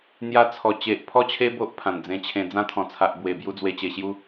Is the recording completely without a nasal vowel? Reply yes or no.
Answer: no